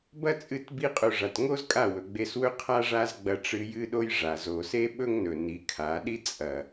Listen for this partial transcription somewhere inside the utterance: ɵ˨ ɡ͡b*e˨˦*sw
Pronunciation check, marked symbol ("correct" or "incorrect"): incorrect